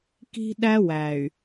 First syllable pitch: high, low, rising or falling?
high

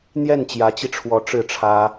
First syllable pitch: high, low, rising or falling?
falling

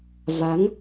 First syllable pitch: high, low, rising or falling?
rising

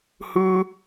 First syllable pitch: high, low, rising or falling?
high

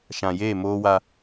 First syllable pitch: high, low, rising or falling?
low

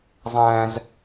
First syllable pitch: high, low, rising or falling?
high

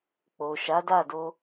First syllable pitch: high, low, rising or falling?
low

